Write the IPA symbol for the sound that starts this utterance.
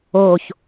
oː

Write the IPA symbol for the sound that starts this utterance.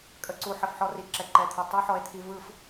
kʼ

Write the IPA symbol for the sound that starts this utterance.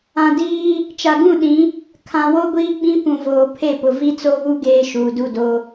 ã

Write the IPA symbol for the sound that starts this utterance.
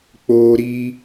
k͡p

